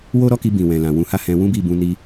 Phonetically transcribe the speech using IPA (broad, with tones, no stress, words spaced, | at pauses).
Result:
wo˦ɾɔ˦ki˧ bĩ˨wɛ̃˨lã˨ wũ˧ha˦hɛ̃˧ wũ˦bi˦˨bũ˧ ni˧